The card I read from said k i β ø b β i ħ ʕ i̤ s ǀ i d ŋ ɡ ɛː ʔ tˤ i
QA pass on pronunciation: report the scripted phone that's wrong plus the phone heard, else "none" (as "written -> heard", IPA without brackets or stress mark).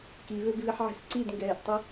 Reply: none